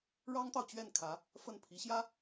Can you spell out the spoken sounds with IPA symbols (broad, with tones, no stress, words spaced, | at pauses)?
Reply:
ɻɑ˥ŋt̪ɑ˨ʊ̯t͡ɕɥɛ˥˩nkʰä˧˥ | fə˥˩npʰi˧˥ɕjä˥